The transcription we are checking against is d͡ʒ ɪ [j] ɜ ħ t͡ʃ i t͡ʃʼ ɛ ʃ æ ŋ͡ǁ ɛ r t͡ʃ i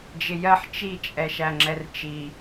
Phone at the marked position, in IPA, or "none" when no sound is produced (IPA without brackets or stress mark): j